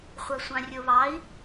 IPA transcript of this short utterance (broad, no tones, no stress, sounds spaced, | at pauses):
χʷ a sʷ ɑ̃ rʲ o β ɑ i̯